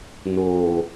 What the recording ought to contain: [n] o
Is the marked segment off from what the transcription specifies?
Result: no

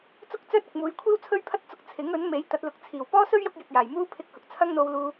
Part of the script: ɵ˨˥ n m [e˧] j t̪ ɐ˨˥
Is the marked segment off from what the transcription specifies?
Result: yes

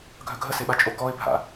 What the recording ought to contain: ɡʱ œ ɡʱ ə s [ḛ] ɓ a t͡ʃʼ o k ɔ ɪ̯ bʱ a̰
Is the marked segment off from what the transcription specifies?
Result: yes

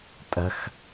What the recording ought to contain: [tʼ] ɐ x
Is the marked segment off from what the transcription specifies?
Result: no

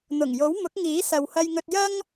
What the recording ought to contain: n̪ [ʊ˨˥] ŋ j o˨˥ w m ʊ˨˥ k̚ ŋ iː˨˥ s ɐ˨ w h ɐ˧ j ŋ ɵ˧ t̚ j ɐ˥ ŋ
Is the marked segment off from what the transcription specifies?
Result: yes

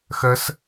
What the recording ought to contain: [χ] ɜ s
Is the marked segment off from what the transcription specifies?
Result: yes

